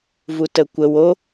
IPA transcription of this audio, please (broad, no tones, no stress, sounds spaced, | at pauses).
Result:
v u t ə kʷ ə w o